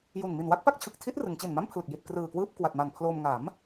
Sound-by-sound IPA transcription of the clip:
j u˨˩ n m i˨˩ n w a˥˩ k̚ p a˥˩ k̚ t͡ɕʰ ɯ˨˩ k̚ tʰ i˦˥ t̚ r ɯ˩˦ ŋ t͡ɕ i˨˩ n m a˥˩ m pʰ l ɯ˨˩ k̚ j i˨˩ t̚ k r ɯː˨˩ k w ɯː˥˩ p̚ k w a˨˩ t̚ m a˨˩ n pʰ l oː˧ m ŋ a˩˦ m

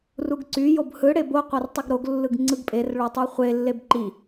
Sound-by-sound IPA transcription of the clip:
r u ɡ ǀ y j o b h ɯ ɽ e b o qʷ ɑ r tˤ i ɡ ɾ o ɡ lː ɯ ɡ ŋ͡ǀ ɯ ɡ pʼ e r ɭ o tˤ y χʷ e lː e b ǃ i

